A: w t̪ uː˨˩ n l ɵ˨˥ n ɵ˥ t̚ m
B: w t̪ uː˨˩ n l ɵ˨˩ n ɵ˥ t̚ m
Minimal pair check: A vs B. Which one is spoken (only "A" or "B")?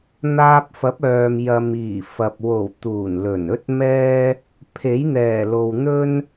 B